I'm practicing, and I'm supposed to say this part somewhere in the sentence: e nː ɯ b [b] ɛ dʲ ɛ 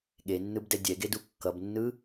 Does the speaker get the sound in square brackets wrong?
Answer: yes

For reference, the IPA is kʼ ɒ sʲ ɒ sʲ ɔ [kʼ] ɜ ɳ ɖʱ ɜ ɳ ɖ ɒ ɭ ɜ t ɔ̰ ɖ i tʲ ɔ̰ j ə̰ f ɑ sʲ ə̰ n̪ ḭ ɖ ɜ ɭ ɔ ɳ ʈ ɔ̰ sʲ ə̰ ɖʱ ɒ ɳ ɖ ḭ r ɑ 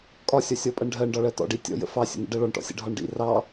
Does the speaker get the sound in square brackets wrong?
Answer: yes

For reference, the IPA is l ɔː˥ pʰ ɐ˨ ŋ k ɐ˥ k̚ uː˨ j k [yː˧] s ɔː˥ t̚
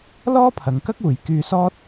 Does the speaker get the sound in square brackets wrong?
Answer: no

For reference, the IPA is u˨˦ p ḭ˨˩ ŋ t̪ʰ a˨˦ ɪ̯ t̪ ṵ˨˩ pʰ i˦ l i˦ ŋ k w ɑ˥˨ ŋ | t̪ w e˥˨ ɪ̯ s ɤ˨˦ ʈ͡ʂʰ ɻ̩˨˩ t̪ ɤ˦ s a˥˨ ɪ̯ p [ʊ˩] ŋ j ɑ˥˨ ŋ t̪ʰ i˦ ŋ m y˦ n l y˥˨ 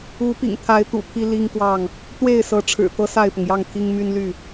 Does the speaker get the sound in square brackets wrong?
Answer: no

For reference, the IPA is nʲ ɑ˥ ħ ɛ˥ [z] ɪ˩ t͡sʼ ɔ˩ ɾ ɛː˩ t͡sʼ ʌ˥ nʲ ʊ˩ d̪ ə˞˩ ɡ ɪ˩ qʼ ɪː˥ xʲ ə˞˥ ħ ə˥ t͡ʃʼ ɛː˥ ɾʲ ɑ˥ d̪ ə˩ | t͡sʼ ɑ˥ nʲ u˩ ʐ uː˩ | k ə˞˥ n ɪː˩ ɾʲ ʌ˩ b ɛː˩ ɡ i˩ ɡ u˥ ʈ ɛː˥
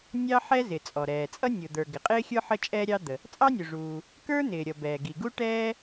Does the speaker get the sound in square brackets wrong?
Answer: no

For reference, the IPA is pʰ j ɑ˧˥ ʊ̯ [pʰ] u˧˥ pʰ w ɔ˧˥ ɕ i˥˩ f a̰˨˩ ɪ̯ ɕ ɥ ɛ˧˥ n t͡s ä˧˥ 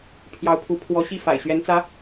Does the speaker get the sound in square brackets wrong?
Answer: no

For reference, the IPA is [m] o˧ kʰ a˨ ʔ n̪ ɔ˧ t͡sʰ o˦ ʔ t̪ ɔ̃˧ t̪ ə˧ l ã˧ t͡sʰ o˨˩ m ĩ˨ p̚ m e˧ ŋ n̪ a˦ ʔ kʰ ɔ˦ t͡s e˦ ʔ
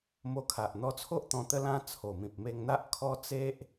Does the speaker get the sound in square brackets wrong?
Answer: no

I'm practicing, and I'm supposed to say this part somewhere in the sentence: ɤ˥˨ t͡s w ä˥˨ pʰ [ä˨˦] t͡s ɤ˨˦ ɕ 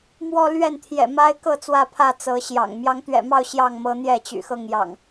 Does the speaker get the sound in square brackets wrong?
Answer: yes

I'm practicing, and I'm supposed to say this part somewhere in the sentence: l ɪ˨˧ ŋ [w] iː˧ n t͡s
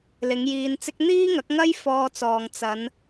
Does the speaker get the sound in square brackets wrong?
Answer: yes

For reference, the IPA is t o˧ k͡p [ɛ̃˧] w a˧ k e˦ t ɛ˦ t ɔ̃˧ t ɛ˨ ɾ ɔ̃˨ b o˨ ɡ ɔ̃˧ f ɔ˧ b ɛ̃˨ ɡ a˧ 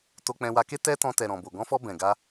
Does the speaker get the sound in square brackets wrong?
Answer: no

